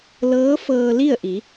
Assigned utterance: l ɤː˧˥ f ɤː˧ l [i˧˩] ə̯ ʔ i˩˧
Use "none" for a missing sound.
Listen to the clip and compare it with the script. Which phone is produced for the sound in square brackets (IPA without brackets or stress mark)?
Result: i˥˨